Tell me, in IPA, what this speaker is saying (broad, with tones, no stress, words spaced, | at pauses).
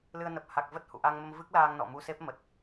lɨ˧ə̯nə˨˩p̚ ha˨˩k̚ və˦˥t̚hṵ˧˨ ʔa˧ŋmə˧m vɨ˦˥k̚laː˧ŋnɔ̰˧˨mu˧ se˦˥p̚mə˨˩t̚